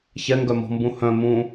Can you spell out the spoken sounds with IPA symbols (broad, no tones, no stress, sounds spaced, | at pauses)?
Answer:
ç ɛ ŋ ɡ œ m ɔ̤ m b ũ h œ̃ m ũ